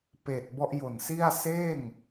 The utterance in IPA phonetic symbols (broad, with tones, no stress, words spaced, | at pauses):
peː˨˩t̚ bɔ˦˥ʔjo˨˩nsi˥˩a̯ seː˥˩ŋ